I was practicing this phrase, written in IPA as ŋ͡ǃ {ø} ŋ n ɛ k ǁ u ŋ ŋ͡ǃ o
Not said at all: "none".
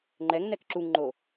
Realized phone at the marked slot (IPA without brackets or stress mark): ɛ